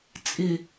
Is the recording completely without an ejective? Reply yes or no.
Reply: no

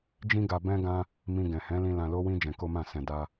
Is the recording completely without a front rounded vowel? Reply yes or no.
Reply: yes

